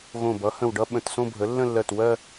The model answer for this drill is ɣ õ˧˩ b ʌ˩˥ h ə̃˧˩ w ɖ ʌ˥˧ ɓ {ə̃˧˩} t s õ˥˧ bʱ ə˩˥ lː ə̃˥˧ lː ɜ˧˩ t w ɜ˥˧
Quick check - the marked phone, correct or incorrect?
correct